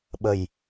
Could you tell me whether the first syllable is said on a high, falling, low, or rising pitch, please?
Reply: low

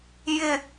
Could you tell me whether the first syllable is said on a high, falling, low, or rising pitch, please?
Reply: low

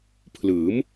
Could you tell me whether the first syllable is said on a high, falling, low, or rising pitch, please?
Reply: rising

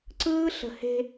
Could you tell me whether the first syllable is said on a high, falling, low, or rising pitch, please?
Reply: high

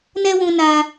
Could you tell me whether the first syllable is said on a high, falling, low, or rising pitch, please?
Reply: high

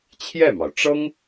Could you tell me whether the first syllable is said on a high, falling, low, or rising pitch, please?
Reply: falling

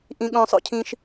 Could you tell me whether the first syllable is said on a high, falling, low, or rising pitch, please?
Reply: high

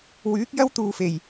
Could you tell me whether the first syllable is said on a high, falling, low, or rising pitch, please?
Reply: rising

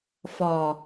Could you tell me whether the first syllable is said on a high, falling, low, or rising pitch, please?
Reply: low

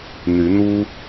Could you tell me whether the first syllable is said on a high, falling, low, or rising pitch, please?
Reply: rising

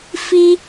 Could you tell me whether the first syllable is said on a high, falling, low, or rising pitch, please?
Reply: high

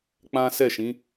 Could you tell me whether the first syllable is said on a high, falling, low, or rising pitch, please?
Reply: high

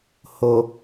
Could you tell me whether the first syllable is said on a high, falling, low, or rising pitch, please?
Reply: low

